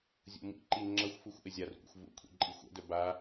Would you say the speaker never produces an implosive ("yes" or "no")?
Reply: yes